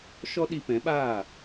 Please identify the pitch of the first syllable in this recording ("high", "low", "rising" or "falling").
high